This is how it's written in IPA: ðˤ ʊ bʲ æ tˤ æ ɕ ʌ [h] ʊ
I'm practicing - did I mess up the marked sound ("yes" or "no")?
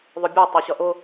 yes